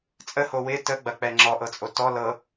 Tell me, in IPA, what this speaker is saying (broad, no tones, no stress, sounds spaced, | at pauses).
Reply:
t͡sʼ ə h o w ɪ t ə ɡ͡b ɐ k͡p ɛ ŋ͡ǁ ɔ ʔ ɤ t͡sʼ o t ɔ l ɤ